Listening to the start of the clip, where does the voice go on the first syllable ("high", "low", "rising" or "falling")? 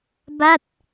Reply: falling